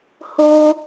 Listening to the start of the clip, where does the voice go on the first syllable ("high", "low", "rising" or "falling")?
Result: high